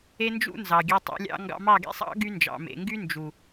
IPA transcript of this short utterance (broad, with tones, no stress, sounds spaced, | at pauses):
e˦ n d͡ʒ ṵ˦ n z ɑ˨ ɡʲ e˧ tˤ ṵ˧ lʲ ɑ̰˧ ŋ ɡ ɑ̰˧ m ɑ˦˨ ɡ ḛ˦ sˤ ɑ̰˦ ɡ y˦ n d͡ʒ ɑ̰˨ m ḛ˨ ŋ ɡ y˦ n d͡ʒ u˨